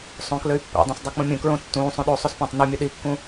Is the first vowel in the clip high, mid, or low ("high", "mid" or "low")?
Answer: mid